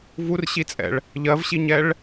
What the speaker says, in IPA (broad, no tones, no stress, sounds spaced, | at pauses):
v u r ɕ i t͡sʼ ɛ̰ ɭ | ʎ ɜ v ɕ i ɲ ɛ ɭ